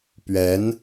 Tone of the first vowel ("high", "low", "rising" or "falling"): rising